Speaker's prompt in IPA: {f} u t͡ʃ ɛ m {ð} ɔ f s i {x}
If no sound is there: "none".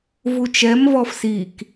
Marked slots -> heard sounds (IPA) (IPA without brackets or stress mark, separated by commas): v, v, k